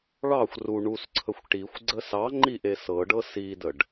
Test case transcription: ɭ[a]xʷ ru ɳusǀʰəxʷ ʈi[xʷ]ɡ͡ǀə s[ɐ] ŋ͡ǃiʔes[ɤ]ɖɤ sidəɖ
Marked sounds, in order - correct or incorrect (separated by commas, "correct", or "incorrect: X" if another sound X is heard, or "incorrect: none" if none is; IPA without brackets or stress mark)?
incorrect: ɑ, correct, incorrect: ɑ, correct